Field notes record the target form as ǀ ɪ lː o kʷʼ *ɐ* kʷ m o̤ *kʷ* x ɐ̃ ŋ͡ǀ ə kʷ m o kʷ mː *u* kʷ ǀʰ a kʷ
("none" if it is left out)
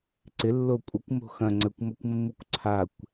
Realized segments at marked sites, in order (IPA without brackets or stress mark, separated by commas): ɐ, none, u